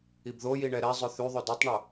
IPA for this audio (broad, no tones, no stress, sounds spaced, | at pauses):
i b ð o j i ɳ ɛ ɾ ɛ zˤ ɵ θ y ðˤ ɵ d ɤ tˤ ɳ o